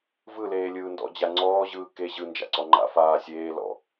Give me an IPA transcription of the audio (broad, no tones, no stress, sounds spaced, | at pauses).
v ɯ l eː lʲ ɯː n d ɔ̰ d͡ʑ a ŋ͡ǀ ɔː ʑ ɯː k e ʑ ɯ n d͡ʒ a̰ ǀ ɔ ŋ͡ǃ a̰ f aː sʲ eː l ɔ̰